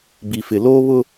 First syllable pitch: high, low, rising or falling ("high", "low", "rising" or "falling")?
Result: low